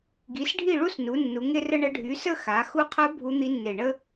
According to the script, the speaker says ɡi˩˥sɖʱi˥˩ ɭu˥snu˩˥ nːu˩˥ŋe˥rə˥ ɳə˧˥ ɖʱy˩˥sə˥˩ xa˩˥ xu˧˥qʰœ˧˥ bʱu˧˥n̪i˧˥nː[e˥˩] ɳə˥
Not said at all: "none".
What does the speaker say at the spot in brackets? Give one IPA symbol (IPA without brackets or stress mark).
e˧˩